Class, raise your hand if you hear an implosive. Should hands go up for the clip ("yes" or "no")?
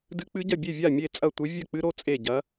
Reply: no